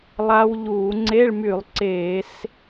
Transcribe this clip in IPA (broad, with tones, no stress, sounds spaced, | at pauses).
lˠ a˦˥ w ʎ uː˧˩˧ ŋ͡ǀ e˧˥˧ ɭ m y˧˩˧ lˠ ǀ eː˧˩˧ s